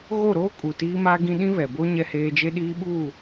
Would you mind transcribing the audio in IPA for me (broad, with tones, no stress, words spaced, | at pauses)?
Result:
ɣo˦˨ɾoː˦kʼu˨ tiː˦ma˦ɡĩ˦ ɗĩ˦βɛ˨bo˦ ɲɛ˦heː˦ d͡ʒe˦ɗiː˦ɓuː˦˨